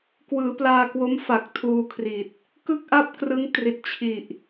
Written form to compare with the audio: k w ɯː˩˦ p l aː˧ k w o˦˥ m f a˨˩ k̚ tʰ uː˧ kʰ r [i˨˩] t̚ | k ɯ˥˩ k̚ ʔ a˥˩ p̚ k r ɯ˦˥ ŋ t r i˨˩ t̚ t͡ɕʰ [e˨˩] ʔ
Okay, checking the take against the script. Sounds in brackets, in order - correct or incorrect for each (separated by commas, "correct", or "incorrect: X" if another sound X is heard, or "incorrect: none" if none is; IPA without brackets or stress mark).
correct, incorrect: i˨˩